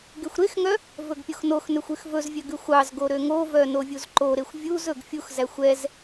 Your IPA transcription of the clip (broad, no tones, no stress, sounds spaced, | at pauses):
ɡ e xʷ ɾ e x ŋ œ | v ɵ ɡ pʲ o x n o x n ø xʷ y x v ɵ z vʲ œ ɡ ʉ xʷ ɑ z ɡ o ɾ ø ŋ o v œ n o vʲ u z ǃ o ɾ e xʷ vʲ u z ɵ ɡ fʲ u x z æ xʷ ɛ z